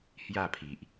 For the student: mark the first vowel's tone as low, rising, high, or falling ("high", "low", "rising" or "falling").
falling